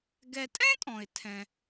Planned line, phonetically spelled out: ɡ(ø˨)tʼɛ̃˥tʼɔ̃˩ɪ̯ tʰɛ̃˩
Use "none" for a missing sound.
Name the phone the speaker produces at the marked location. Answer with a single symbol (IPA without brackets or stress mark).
ɛ˨